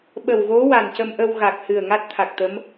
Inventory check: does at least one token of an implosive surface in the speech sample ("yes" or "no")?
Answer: yes